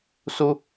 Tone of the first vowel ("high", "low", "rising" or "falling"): high